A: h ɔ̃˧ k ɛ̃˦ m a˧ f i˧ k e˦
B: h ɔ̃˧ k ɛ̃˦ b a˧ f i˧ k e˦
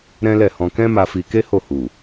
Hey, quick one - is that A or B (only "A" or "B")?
A